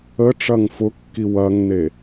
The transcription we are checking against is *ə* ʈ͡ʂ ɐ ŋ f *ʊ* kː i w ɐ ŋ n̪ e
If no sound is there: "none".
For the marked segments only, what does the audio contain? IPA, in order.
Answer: ə, ʊ

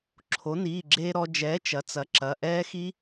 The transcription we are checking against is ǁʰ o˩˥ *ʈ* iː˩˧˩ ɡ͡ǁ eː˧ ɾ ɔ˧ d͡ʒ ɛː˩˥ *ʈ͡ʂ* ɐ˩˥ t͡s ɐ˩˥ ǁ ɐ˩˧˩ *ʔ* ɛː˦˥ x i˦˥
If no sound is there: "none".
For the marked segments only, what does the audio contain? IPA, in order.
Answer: n, t͡ʃ, ʔ

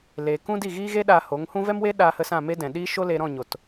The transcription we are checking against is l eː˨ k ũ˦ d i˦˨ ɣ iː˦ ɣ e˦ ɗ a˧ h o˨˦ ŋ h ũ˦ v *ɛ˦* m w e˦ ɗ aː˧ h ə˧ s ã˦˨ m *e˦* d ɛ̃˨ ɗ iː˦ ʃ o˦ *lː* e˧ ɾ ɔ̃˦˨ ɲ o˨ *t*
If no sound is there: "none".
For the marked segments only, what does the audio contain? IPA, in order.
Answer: ɛ˦, e˦, l, t

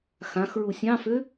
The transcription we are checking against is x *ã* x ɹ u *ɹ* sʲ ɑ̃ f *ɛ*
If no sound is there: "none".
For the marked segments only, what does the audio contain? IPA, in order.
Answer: ã, none, ø

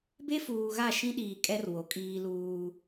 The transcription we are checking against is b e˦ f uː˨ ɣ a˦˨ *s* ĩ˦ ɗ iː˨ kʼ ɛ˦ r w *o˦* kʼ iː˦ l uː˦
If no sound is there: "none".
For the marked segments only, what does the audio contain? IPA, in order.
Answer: ʃ, o˨

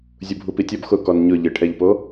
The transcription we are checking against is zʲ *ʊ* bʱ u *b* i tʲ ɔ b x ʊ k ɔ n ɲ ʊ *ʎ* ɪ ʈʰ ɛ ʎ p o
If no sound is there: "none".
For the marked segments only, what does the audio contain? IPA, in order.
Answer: u, p, ʎ

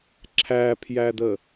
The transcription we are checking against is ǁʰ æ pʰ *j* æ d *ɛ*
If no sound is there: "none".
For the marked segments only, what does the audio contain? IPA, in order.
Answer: j, ə

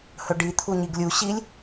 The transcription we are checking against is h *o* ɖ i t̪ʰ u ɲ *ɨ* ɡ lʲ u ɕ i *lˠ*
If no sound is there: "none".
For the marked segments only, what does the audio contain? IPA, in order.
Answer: ɵ, i, lʲ

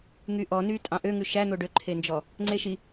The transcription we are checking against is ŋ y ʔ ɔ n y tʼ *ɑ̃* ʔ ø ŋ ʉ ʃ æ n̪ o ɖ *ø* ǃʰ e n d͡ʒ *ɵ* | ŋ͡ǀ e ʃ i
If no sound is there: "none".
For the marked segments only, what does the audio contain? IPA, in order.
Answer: ɑ̃, ø, ɔ

